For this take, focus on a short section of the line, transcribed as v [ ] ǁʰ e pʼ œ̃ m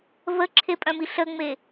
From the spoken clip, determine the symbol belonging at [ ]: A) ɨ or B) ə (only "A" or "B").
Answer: B